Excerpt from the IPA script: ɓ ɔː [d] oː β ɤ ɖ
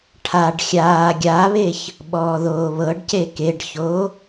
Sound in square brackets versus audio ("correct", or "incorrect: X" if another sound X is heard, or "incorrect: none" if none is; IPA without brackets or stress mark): incorrect: ð